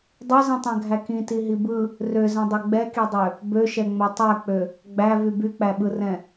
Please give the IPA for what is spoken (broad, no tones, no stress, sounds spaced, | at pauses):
dˤ ø z ĩ tˤ ɛ̃ ɡʱ æ k ĩ t i ɦ i b ɯ | r ø z ɛ̃ dˤ ɛ ɡ͡b ɛ k i dˤ ø | b ø ʃ ɛ ŋ͡m ɛ tˤ æ k͡p ø | ɡ͡b æ v y b y k͡p æ ɓ ɯ r ɛ̃